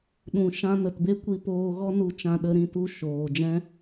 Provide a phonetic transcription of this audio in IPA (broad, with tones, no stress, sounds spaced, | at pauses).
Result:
ɗ ũ˨ ʃ ã˧ n ə˨ t b e˦ kʷ i˧ p oː˧ ɣ ɔ˦ n u˧ t͡ʃ ã˧ ɗ ə˧ ɾ ĩ˦˨ t u˦˨ ʃ oː˨ d͡ʒ ɛ̃˦